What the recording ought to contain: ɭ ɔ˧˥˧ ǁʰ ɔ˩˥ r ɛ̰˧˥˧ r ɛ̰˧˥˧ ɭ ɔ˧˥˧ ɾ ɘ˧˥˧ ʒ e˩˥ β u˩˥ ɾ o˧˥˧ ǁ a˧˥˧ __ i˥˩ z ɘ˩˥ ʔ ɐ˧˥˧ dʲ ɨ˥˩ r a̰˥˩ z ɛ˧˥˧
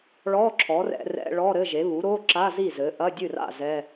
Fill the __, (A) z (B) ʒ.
A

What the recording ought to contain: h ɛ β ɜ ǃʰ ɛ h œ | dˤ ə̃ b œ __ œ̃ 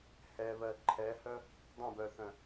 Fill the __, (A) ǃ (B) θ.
B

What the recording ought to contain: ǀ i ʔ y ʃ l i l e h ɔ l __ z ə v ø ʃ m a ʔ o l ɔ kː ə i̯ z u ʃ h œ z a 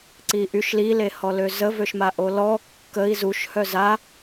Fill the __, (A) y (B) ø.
B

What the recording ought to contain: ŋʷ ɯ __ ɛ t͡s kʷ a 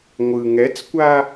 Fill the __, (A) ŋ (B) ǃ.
A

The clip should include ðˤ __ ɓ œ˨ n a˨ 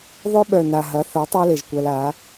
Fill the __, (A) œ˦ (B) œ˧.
B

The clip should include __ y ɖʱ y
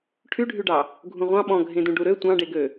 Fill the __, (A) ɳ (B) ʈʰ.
B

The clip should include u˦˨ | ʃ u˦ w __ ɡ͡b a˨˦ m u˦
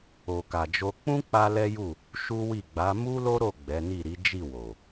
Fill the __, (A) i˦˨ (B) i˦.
A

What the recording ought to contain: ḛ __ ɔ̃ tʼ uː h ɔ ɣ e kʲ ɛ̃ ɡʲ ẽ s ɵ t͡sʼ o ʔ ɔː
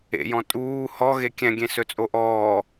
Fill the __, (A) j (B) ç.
A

